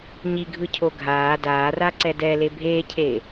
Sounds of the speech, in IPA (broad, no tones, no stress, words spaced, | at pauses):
ɲiɡʱɯcʰo ɡʱaː daːraǀɛ dɛle bʱeːcʰeː